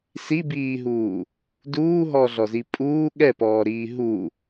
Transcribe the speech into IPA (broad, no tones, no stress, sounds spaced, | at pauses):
s i b iː ɦ uː | d uː ɦ ɔː ɮ ɔ z i pʼ uː ɠ ɛ p ɔː ɾ iː ɦ u